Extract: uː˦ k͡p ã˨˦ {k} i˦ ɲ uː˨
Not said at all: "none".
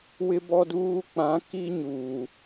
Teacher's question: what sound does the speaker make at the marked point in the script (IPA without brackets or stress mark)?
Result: k